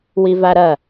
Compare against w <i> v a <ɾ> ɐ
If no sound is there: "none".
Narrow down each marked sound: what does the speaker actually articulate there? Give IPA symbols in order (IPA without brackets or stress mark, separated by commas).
i, ɾ